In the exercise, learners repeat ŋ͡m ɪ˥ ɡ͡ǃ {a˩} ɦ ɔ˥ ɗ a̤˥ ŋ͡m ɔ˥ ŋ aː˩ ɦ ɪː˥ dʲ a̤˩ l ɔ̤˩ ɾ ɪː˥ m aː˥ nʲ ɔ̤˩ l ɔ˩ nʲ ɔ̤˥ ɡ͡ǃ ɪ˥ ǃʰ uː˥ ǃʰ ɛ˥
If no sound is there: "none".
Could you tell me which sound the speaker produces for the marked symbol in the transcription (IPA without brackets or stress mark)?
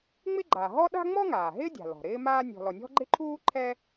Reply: a˩